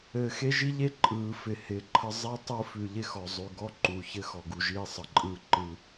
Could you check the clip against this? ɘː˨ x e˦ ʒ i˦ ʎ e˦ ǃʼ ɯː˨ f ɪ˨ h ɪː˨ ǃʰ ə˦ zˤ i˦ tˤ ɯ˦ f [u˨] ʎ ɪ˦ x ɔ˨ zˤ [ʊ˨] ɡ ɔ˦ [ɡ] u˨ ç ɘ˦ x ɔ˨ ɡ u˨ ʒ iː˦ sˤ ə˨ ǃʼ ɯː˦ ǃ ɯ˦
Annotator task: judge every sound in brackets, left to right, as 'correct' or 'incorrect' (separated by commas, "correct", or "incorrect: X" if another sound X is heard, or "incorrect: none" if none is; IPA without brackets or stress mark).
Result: incorrect: ʉ˨, incorrect: ʉ˨, incorrect: ǃ